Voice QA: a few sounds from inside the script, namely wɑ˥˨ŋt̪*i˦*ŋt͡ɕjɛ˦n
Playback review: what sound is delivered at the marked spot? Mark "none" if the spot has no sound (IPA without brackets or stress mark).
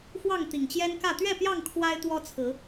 i˨˩